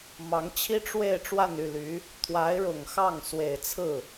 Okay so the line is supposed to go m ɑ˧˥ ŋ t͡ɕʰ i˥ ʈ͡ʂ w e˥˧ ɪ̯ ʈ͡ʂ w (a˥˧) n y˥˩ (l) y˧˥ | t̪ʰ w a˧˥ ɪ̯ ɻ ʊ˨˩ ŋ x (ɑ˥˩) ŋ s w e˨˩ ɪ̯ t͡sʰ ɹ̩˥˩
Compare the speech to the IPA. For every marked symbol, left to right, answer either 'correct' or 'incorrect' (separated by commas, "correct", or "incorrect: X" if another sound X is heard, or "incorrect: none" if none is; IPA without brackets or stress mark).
correct, correct, correct